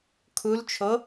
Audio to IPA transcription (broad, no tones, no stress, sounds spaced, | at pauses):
kʰ u l t͡ʃʰ o